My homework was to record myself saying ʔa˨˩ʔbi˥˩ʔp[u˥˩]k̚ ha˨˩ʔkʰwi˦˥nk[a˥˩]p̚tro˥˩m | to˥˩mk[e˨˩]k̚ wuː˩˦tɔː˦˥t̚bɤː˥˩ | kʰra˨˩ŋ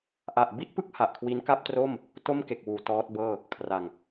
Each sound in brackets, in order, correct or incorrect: incorrect, correct, correct

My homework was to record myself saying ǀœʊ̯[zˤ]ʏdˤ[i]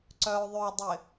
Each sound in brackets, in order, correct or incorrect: incorrect, incorrect

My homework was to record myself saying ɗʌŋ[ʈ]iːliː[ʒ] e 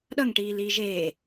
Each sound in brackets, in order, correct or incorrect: correct, correct

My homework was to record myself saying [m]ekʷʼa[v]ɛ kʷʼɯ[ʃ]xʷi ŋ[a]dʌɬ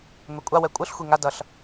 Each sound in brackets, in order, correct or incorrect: correct, incorrect, incorrect, correct

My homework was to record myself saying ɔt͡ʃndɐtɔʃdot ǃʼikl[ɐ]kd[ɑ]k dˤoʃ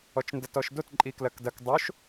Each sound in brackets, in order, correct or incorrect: correct, incorrect

